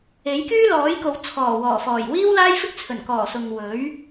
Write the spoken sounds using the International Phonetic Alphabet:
e˨˥ j k yː˥ l ɔː˨˥ j k o˨˧ w t͡sʰ ɔː˨˩ w ɔː˨˩ f ɔː˨˩ j w iː˥ w l aː˥ j f ɪ˥ k̚ t͡sʰ ɵ˨˩ n k ɔː˨˩ s ʊ˨ ŋ w ɵ˨˥ ɥ

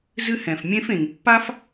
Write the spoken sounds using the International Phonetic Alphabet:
z ɨ˦ h ɛ̃˩ f mʲ ẽ˦ f ẽ˩ ŋ pː a˥ f

